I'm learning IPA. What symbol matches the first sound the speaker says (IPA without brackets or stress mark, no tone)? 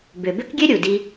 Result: b